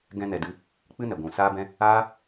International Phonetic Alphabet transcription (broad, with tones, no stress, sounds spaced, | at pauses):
ɡ ɛ̃˧ n ɛ˨ d ɨ˨˦ | k͡p ɨ˦ n ɛ˨ ɡʷ ũ˨ s aː˧ b ɛ̃˧ | aː˦